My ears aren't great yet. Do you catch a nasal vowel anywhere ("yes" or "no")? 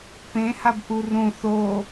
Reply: yes